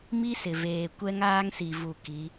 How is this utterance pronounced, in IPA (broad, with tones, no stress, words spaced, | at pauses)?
mi˦sɪ˨veː˨ kʷɛ˦ŋaː˦ŋsi˨vu˨ ki˨˦